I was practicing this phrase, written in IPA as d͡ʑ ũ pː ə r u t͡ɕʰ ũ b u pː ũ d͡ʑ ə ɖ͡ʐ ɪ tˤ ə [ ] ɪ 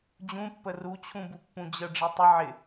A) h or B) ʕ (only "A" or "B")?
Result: B